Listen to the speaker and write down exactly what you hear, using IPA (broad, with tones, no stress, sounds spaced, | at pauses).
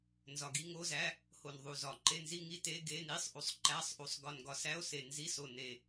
n z ɒ˨˩ ɡ i˧˥˧ ŋ o˧˥˧ z æ˧˥˧ | h o˨˩ n ðˤ u˨˩ z ɒ˨˩ ǃ e˧˥˧ n z i˧˥˧ ŋ i˧˥˧ t e˧˥˧ ɡ e˧˥˧ n i˧˥˧ sˤ ʔ u˨˩ sˤ ǃ æ˧˥˧ sˤ ʔ u˨˩ sˤ ɡ ɒ˨˩ n ɡ ɒ˨˩ s æ˧˥˧ o̯ s e˨˩ n z i˧˥˧ s o˨˩ n e˨˩